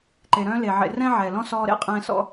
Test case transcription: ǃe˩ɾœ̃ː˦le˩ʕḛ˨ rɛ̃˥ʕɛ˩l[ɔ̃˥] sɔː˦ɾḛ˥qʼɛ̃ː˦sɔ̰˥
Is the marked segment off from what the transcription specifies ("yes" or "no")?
no